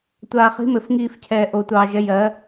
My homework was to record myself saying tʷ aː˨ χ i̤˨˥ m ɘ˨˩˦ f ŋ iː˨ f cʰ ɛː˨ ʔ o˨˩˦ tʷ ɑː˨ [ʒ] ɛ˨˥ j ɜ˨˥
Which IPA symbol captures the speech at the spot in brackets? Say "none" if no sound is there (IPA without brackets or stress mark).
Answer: ʒ